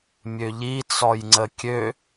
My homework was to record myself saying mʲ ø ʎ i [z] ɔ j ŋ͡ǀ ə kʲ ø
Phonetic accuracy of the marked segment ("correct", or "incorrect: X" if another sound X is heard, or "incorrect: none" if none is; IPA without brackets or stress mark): incorrect: t͡s